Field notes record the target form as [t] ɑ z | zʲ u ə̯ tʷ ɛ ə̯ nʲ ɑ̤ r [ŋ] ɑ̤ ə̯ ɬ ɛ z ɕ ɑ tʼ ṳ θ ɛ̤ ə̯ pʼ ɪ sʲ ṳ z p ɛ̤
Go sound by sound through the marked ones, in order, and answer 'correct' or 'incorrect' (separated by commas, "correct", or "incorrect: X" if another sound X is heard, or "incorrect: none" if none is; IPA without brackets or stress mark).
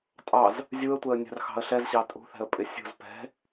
incorrect: tʼ, incorrect: x